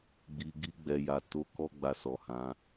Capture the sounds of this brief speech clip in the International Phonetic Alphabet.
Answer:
ɡ͡b i˨ ɡ i˧ ɡ͡b ɛ˨ j a˨ t o˨˦ k ɔ˦ ɡ͡b a˧ s ɔ˨ h ã˨˦

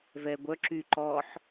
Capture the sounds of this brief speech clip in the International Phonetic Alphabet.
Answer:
v ɛ ɡʷ œ ǁ y ǃ ɔ ħ

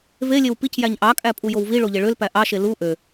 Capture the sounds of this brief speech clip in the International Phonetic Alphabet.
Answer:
v e lʲ e w p i c j æ ɲ ʔ ɑ kʼ æ pʼ u j o w v i ɭ o ʎ e ɭ ø l p æ ʔ ɑ ʃ e l u ʔ ø

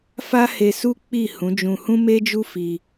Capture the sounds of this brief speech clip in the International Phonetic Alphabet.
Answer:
f a˦ h e˧ s u˦ k͡p i˦˨ h ũ˨˦ d͡ʒ ũ˧ h ũ˦ m e˦ d͡ʒ u˦ f i˧

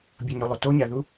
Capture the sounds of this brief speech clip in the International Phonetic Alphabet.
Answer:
bʲ o ɲ u lˠ u t o ɲ æ ð u

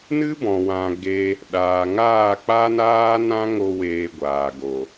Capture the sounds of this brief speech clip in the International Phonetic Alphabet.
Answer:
n ɨ˦ b ɔ̃˨ w ã˨ ɡ e˧ | ɗ aː˨ ŋ aː˦˨ k͡p a˦ n aː˦ n ã˦ ŋ o˧ w eː˨ ɡʷ aː˨ ɡ o˨

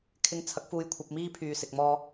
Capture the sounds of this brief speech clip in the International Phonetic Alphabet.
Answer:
kʰ ɪ˧ ŋ t͡sʰ ɐ˨˥ k̚ f uː˧ j kʷʰ ɐ˧ p̚ m iː˥ pʰ yː˨ s ɪ˨ k̚ m ɔː˧

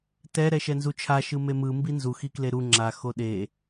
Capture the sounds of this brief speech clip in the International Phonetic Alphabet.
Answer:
t ɛ ɾ ɛ ʃ ɛ n z u t͡ʃʰ a ʃ ɯ m e m ɯ m b i n z u x i k l e ɾ u ŋ͡ǁ a x o ɗ e

